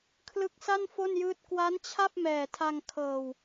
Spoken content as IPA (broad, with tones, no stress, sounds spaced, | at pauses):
kʰ l ɯ˦˥ k̚ s a˥˩ n f o˥˩ n j ɯː˥˩ t̚ k w a˦˥ n t͡ɕʰ a˥˩ p̚ m ɛː˨˩ tʰ a˧ ŋ kʰ ɤː˨˩ w